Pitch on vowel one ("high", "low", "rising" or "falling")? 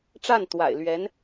falling